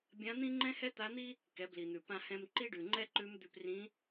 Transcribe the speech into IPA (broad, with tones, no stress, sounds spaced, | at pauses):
bʲ ã˧˥ n̪ ĩ˥ ŋ͡ǃ ɛ̃˥ h ɛ˥ t̪ a˧˥ n̪ i˥ | k ɛ˩˧ b l i˩ n̪ ʉ˩ p ã˧ h ɛ̃˧ m ǃ i˥ ɖ ʉ˩ ŋ͡ǃ ɛ˥ ǃ ʉ˧˥ m d̪ ʉ˧ p r ĩ˧˥